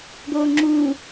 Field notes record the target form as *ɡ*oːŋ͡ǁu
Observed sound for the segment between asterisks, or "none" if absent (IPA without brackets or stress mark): ɡ